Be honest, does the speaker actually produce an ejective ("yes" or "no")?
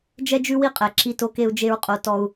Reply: yes